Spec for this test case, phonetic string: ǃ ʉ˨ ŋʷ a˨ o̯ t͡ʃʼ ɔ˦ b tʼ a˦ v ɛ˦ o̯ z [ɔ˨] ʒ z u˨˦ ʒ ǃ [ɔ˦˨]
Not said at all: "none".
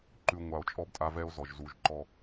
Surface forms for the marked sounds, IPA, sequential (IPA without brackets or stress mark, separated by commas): ɔ˨, ɔ˦˨